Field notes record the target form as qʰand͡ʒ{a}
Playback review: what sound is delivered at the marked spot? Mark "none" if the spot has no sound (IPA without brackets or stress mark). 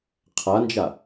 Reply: a